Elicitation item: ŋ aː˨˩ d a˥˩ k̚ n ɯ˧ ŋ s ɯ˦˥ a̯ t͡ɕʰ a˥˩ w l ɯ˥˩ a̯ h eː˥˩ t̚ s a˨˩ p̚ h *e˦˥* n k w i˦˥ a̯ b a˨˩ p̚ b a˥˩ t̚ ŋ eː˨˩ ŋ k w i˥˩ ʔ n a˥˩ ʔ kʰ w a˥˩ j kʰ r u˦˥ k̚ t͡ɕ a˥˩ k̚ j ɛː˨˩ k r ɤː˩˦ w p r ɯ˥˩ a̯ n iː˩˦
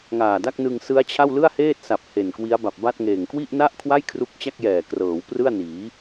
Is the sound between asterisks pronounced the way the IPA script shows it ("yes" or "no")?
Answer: no